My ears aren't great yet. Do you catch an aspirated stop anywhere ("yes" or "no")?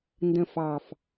no